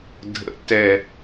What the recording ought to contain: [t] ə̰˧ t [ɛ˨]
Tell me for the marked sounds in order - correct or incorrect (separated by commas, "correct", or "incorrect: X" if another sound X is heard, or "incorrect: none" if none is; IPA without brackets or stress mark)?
incorrect: dʱ, correct